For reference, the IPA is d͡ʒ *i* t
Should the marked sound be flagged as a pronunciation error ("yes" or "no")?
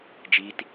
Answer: no